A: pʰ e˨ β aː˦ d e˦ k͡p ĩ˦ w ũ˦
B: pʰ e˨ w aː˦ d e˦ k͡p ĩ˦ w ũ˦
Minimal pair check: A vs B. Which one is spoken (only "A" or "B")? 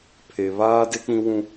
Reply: A